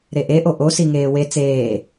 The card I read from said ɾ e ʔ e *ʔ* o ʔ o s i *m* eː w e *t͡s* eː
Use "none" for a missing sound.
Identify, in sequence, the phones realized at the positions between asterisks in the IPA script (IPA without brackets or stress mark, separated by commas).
ʔ, ŋ, t͡s